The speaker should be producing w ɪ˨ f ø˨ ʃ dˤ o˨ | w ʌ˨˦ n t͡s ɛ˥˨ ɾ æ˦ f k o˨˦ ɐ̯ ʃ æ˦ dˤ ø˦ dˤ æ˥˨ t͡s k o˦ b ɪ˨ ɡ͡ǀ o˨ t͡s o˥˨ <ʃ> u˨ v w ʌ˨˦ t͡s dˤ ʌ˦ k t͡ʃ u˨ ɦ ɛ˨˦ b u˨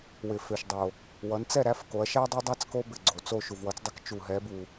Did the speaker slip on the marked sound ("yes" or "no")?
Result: no